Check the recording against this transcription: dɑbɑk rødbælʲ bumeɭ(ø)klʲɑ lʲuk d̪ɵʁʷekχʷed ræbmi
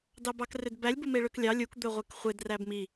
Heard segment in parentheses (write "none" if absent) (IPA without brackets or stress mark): ø